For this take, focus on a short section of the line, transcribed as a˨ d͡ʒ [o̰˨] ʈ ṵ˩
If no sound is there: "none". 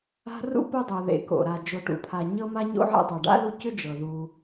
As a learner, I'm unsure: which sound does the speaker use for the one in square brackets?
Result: o˨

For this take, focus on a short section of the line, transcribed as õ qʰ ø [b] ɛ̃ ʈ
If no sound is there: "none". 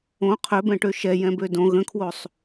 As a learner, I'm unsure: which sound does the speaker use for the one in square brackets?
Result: b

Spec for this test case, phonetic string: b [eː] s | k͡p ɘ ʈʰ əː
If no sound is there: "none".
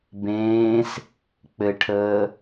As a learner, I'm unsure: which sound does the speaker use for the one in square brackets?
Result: ẽː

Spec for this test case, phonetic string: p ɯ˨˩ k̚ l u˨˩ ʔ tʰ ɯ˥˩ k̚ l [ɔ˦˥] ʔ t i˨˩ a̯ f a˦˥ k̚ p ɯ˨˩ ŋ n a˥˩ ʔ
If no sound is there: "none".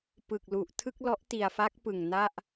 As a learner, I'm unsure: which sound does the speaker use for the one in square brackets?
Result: ɔ˦˥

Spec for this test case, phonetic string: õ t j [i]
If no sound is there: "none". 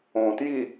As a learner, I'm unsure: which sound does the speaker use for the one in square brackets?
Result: i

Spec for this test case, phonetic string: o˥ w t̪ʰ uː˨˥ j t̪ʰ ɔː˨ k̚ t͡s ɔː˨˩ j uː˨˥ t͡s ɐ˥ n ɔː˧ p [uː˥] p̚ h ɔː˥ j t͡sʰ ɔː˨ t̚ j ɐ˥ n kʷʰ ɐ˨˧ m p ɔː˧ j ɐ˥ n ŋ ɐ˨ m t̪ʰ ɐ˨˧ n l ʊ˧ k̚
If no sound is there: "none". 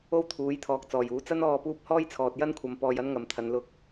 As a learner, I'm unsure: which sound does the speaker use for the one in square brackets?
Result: uː˥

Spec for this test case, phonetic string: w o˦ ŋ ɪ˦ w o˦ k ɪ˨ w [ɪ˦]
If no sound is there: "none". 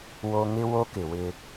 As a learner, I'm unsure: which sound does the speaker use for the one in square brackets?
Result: ɪ˦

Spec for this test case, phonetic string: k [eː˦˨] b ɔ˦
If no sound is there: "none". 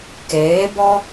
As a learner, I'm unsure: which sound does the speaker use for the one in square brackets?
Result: eː˨˦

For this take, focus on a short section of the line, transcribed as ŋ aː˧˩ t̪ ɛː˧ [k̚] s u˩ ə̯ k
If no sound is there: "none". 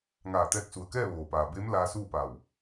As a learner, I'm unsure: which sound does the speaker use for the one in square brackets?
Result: k̚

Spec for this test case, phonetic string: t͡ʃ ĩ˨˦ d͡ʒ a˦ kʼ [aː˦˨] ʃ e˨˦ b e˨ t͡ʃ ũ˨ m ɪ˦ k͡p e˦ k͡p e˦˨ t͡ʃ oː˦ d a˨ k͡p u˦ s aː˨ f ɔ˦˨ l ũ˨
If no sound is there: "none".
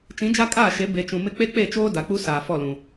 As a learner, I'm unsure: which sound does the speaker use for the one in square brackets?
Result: aː˦˨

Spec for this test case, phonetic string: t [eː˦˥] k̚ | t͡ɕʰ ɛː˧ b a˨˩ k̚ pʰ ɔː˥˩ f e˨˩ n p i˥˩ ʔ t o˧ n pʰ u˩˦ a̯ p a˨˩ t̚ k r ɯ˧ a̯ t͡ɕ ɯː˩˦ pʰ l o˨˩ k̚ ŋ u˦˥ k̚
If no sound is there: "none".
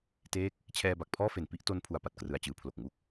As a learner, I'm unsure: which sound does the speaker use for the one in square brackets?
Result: eː˦˥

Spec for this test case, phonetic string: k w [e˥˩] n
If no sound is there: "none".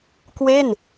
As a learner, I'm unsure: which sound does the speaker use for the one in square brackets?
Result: e˥˩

